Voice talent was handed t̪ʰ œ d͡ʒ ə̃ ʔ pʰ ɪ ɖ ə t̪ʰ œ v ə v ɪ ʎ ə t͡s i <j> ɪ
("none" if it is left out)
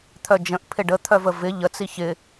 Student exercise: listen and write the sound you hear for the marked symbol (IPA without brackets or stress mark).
ç